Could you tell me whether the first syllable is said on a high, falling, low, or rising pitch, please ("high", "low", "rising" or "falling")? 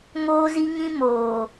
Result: high